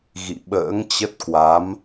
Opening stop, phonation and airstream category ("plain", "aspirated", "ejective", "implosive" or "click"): implosive